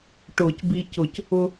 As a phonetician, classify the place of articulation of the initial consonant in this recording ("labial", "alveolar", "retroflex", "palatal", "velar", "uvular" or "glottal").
retroflex